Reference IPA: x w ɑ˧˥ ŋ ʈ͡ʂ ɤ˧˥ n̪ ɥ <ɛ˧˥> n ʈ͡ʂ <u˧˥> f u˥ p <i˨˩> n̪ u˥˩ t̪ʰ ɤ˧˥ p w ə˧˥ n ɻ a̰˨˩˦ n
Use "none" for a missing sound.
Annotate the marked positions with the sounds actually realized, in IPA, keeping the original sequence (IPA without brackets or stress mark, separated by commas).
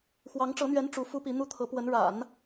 ɛ˧˥, u˧˥, i˧˥